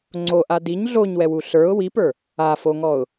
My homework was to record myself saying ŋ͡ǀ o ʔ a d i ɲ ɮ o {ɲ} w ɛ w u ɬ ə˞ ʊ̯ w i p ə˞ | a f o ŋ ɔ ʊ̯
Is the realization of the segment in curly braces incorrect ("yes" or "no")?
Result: no